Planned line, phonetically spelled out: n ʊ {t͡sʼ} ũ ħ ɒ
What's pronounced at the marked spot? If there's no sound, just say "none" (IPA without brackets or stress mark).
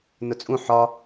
t͡sʼ